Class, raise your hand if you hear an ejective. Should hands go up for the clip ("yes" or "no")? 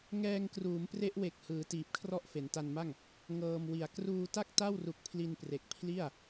no